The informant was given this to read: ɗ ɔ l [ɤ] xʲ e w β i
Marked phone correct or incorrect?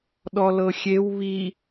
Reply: correct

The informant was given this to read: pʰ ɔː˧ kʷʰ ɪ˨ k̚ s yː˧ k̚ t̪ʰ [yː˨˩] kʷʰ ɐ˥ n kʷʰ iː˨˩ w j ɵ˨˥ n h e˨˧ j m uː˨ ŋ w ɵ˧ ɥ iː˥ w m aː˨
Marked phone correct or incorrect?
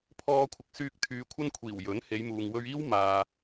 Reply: incorrect: yː˨˧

